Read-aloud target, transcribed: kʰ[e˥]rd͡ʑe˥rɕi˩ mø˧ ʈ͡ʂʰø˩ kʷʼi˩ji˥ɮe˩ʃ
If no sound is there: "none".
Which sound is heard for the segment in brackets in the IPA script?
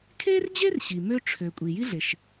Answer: e˥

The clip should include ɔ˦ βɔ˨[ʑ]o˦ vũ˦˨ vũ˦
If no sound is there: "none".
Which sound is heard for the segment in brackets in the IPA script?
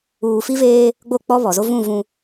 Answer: z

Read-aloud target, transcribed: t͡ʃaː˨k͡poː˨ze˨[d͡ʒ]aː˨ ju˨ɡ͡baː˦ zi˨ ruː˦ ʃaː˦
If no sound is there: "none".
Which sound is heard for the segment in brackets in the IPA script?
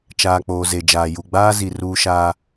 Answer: d͡ʒ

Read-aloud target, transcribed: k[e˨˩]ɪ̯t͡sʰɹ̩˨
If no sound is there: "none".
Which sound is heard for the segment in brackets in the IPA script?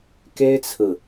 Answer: e˥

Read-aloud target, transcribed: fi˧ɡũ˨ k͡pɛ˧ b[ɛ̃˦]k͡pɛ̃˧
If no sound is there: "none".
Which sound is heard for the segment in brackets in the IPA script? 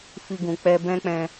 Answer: ɛ̃˦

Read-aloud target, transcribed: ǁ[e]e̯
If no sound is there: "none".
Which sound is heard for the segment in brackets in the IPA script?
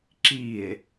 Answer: i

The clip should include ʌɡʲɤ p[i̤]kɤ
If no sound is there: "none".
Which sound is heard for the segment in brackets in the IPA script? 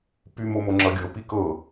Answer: i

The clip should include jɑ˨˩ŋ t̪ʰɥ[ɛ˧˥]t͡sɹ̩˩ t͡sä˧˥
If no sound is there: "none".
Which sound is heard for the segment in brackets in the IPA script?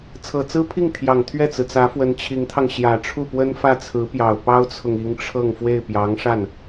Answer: ɛ˥˩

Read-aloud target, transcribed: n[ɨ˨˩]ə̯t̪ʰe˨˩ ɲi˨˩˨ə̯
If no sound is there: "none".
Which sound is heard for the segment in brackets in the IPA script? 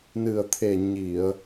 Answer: ɨ˨˩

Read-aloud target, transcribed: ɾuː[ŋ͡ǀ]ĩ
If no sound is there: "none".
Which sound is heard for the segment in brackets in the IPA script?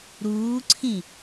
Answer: ǀʰ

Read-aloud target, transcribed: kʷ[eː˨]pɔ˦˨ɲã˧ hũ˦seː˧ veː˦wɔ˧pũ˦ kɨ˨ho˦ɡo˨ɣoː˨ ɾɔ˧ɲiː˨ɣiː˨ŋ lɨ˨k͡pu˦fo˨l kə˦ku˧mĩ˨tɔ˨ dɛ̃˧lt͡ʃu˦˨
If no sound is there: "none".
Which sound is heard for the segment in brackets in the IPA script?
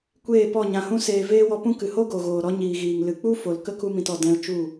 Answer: eː˦˨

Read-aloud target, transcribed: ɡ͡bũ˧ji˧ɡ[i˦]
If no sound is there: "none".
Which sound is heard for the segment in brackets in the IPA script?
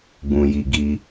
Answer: i˦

